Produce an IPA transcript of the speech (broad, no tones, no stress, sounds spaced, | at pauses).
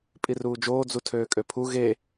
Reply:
pʼ i r uː d͡ʒ oː d͡z u tʰ øː kʼ ø pʰ u ɣ e